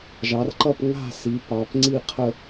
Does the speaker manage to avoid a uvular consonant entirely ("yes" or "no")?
no